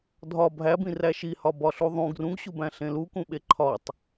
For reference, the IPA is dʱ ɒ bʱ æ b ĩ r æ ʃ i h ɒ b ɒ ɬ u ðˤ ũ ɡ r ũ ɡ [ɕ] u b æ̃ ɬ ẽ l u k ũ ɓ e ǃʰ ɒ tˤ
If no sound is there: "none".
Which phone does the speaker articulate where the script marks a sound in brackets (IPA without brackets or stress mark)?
ɕ